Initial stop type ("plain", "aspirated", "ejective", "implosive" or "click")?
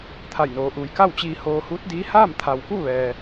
aspirated